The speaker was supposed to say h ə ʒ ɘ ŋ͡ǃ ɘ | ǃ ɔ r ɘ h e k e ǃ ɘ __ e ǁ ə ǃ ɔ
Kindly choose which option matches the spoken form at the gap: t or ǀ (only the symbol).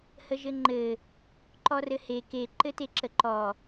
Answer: t